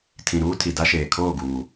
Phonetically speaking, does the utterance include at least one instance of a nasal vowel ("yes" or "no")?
yes